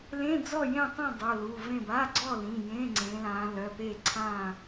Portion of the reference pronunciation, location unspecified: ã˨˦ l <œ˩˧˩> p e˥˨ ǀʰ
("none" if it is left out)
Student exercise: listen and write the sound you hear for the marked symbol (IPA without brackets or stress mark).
œ˩˧˩